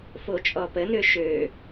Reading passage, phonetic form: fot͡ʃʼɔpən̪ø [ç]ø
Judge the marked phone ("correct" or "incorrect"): incorrect